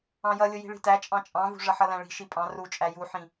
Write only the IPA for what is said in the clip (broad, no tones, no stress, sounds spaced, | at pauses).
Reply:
ɑ̃ j ʌ lʲ ʊ j i̤ ɭ i̤ t æ t͡ʃʼ ɑ̃ t͡ʃʼ ɑ̃ v ṳ ʐ ʌ ħ ʌ l æ̃ ɭ i̤ ʃ i pʼ ɑ̃ r u t͡ʃʼ æ j u ħ ĩ